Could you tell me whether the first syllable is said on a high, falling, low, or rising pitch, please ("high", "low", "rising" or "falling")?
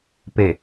low